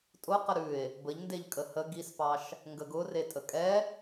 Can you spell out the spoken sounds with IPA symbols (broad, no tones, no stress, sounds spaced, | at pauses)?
tʼ ʊ q ə ɾ ʉ e̯ | b ə ʎ n d e ʎ kʼ ə h ə ɡ i s p ɑ ʃ | ŋ ɡ ə ɡ ʊ r e tʼ ə kʼ ɛ